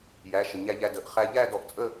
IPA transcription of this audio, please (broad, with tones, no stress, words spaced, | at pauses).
jæ˩˧˩ʃə˩ ɲæ˧ ʎæ˧də˩˧˩ʔ χæ˧ ʎæ˥˧dɔ˧ʔt͡sʼə˥˧